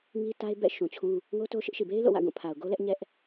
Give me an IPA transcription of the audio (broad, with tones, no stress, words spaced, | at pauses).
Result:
ŋi˦ta˦ɪ̯bɛ̰˦˨ ʃũ˨ t͡ɕʰũ˦ | ŋo˦to˦ ʃɪ˦ʔʃi˨ be˦ɪ̯lo̰˦˨wä̰˦˨ ɡũ˦˨pʰa˨ʊ̯ɡo˦lɛ˦ʔ ɲɛ˦ʔ